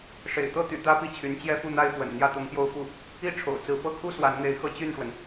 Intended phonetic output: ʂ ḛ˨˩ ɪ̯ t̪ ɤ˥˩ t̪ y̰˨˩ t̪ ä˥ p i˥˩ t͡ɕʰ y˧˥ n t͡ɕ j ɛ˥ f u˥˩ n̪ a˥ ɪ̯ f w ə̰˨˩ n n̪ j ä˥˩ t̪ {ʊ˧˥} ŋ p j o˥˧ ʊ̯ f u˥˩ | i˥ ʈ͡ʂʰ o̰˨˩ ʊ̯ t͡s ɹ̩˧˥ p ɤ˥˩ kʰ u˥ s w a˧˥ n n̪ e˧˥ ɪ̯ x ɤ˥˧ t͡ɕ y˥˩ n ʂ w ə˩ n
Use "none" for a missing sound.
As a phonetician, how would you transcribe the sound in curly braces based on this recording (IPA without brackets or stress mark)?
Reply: ʊ˧˥